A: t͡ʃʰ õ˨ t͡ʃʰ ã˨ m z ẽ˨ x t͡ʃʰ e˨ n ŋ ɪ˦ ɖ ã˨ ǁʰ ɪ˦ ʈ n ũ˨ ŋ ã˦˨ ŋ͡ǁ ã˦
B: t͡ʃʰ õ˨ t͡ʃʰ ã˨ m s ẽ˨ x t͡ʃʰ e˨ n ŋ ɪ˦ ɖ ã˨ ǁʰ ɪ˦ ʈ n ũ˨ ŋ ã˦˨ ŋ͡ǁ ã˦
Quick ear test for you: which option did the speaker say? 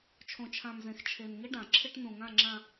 A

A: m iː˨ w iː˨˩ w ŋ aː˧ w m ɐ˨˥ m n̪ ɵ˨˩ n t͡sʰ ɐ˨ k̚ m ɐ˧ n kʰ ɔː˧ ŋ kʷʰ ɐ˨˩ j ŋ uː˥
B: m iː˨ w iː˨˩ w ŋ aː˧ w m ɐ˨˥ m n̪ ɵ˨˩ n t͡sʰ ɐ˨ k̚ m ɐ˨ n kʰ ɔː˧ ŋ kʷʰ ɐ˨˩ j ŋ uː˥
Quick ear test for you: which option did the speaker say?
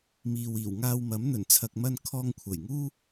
A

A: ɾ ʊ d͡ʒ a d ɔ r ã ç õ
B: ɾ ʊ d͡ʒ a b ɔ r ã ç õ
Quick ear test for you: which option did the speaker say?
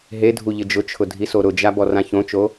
B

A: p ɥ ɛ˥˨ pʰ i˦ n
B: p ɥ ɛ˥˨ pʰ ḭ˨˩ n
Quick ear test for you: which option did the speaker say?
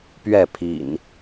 B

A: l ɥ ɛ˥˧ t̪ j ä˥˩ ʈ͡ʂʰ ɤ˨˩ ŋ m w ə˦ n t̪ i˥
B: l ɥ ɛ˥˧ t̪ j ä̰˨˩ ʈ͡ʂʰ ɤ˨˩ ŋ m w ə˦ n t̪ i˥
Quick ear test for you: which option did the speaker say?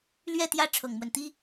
A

